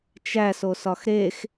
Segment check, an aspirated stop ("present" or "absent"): absent